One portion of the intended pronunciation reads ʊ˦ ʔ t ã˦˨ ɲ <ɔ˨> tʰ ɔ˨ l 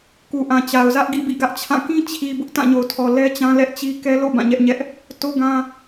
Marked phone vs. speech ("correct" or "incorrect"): incorrect